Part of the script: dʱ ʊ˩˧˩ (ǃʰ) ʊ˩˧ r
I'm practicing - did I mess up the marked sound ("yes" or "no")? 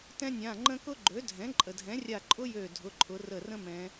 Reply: no